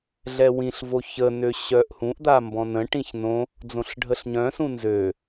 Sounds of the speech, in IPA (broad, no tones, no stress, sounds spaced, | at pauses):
ɮ ɛ w ĩ ɬ v o ç ə n ø ɕ œ ʔ h ũ ʔ d̪ a m b ɔ̃ n ə̃ ʈ ĩ ç n õ | d͡z õ ɬ ɖʱ ə ɬ ɲ œ̃ s ũ n z ø